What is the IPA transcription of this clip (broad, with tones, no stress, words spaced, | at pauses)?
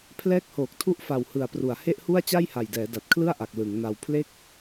pʰlɛː˦˥k̚hoː˨˩k̚tʰu˦˥ʔfa˨˩w hɯ˨˩a̯pru˩˦a̯ he˥˩ʔhu˥˩a̯ t͡ɕa˥˩jha˨˩jdɛː˩˦ da˨˩t̚kʰlɯ˥˩a̯ʔa˨˩k̚ lɯ˩˦ŋna˧w pʰle˥˩k̚